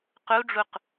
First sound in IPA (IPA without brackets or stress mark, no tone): q